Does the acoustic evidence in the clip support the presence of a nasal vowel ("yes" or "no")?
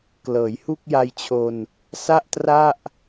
no